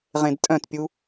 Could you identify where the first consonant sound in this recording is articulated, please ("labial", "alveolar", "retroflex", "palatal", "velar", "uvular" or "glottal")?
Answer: uvular